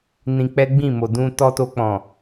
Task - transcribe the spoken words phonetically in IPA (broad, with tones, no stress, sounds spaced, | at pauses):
n ĩ˧ k͡p ɛ˦ ɡ͡b ĩ˦˨ m o˨ d ũ˧ t ɔ˧ t o˧ k͡p ɔ̃˨